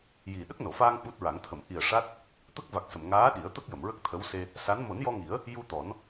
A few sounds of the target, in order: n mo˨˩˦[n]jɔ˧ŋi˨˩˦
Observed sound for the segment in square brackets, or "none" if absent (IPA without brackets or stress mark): n